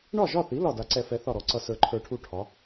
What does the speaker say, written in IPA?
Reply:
ɳɒ˥˩ʒɒ˥˩θi˩˥ lɒ˥˩da˧ǀɛ˥˩ fɛ˧ θɒ˥˩ɾɔ˩˥ǀʌ˧ sə˞˧ǃʰə˞˧ʈʰu˥˩ ʈʰɒ˩˥

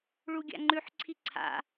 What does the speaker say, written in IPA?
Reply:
ɭuɡʲa̰ŋ͡ǃʉħ ǀʰiǀʰa̰

